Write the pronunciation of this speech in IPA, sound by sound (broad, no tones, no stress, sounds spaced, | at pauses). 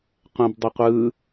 qʷ ẽ b dˤ ʏ qʷ ɯ